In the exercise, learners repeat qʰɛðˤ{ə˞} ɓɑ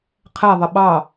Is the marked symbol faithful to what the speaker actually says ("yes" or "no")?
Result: no